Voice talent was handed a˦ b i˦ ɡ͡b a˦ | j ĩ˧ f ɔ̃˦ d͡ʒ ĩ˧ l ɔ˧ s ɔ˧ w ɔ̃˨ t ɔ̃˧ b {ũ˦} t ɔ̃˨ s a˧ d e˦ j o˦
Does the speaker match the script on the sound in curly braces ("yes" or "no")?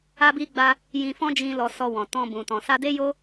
no